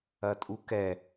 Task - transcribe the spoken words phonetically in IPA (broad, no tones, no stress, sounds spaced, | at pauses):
ɐ tʼ u k ɛ